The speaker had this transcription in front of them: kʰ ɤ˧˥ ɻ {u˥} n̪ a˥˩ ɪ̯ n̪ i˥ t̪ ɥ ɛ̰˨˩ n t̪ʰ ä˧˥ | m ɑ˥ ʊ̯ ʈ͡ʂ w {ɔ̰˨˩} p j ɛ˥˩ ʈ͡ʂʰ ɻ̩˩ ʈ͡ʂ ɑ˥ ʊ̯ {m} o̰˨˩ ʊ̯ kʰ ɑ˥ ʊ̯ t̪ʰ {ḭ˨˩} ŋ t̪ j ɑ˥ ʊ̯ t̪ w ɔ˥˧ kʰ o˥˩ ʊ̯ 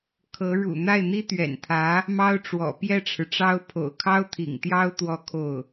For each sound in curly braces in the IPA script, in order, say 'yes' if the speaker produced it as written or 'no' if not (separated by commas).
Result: no, yes, no, yes